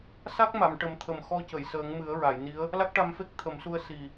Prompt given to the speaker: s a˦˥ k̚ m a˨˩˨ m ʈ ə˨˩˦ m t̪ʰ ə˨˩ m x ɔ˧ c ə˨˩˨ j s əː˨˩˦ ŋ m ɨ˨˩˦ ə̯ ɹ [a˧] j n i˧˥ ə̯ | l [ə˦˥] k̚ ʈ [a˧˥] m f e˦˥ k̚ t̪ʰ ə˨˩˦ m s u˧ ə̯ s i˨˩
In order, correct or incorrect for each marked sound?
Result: incorrect: a˨˩˨, incorrect: a˦˥, incorrect: a˧

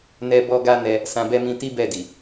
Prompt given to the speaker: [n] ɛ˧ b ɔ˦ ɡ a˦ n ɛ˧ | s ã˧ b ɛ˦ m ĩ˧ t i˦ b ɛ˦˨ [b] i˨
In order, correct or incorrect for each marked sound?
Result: correct, incorrect: d

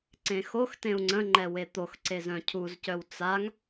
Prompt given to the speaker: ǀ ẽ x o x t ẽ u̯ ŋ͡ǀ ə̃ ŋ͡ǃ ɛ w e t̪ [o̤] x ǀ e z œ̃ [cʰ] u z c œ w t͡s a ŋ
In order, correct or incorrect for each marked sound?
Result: incorrect: o, correct

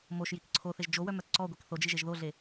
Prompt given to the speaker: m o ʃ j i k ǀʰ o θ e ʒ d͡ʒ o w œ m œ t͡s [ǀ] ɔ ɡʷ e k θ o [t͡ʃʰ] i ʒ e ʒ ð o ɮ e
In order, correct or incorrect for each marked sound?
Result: correct, incorrect: d͡ʒ

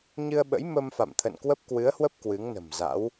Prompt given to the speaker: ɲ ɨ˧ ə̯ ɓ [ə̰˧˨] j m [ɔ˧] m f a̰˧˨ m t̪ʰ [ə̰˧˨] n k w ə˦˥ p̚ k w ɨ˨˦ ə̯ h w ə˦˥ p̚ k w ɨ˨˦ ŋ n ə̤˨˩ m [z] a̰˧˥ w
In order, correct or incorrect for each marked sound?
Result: incorrect: ə̰˧˥, incorrect: ə˧, correct, correct

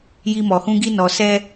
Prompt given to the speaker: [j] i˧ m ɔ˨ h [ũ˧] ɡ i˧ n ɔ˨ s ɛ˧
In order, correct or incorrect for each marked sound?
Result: correct, correct

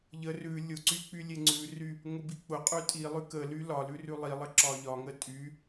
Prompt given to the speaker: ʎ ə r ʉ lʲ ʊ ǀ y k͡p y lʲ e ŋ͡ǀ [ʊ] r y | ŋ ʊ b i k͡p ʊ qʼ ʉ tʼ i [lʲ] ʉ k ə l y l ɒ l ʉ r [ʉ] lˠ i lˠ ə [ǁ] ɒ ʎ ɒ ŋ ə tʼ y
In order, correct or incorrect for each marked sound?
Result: incorrect: ʉ, incorrect: lˠ, correct, correct

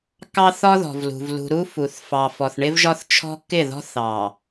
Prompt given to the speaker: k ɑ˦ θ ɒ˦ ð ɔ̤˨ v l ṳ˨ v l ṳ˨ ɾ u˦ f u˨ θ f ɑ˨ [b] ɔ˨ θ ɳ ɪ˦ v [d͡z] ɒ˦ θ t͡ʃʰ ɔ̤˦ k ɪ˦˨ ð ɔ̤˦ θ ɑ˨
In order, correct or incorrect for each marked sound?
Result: incorrect: f, incorrect: ʒ

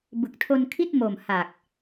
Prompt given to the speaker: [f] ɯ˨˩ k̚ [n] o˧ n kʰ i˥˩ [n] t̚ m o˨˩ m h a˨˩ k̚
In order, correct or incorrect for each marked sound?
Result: incorrect: b, incorrect: tʰ, incorrect: none

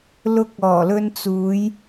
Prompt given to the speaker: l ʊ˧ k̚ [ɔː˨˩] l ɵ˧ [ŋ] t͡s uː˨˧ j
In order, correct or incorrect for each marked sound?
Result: correct, incorrect: n

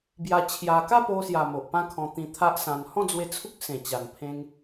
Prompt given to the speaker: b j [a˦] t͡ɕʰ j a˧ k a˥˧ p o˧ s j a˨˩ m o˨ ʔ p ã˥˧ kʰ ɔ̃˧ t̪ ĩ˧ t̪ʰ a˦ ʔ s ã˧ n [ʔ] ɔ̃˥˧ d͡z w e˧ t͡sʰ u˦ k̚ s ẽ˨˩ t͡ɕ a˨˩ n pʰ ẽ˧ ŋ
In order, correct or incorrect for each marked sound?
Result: incorrect: a˧, incorrect: h

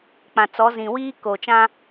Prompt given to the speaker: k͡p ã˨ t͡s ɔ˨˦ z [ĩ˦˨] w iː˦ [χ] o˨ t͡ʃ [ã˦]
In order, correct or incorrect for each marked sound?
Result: incorrect: ĩ˨, incorrect: k, correct

